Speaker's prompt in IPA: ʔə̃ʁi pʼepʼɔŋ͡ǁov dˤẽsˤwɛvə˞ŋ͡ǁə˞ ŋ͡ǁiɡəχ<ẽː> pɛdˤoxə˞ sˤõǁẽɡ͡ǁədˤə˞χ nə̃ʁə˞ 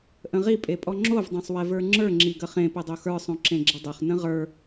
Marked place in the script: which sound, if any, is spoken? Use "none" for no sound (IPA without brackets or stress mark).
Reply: ẽ